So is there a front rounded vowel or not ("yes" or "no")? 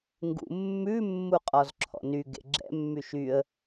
yes